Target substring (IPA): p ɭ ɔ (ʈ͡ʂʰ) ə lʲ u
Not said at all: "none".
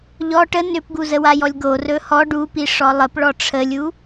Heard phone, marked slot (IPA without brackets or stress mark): ʈ͡ʂʰ